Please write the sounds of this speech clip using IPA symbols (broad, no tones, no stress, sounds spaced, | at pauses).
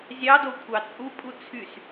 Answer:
zʲ ɑ d o kʷʰ ɑ t͡sʼ u pʼ u t͡sʰ y s